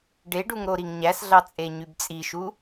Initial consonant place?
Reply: retroflex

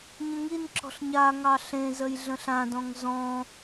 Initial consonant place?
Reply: palatal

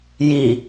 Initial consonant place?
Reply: palatal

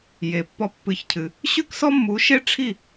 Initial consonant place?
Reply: palatal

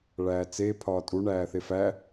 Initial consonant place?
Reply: retroflex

